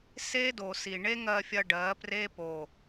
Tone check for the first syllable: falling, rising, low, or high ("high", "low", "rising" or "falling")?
high